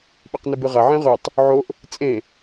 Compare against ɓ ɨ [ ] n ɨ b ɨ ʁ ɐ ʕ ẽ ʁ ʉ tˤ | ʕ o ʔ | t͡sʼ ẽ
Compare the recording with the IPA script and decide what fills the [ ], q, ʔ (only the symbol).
q